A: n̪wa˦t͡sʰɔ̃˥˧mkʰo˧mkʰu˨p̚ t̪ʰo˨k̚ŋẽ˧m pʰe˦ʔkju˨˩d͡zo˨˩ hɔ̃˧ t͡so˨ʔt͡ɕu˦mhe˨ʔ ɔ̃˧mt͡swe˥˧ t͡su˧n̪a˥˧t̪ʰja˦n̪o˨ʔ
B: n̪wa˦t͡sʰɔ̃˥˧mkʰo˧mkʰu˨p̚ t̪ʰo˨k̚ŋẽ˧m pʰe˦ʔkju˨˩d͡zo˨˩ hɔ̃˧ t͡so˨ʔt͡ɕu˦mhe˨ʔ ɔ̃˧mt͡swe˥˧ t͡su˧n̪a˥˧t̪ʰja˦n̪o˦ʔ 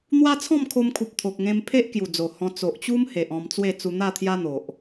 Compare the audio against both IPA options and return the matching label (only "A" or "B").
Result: A